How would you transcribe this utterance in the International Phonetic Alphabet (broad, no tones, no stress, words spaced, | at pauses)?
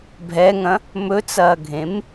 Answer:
bʱɛŋɐ̃ | mɵt͡sɐːɡʱẽm